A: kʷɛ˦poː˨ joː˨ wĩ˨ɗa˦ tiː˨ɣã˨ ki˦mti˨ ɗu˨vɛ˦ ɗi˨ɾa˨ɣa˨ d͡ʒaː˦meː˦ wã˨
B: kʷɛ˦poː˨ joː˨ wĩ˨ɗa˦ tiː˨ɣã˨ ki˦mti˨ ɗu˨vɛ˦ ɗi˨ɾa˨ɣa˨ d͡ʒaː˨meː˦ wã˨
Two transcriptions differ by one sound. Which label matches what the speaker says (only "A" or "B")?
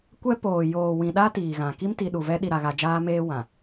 A